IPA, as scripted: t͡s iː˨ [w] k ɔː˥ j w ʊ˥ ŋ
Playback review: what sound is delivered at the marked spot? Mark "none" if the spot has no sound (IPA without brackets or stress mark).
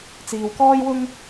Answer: w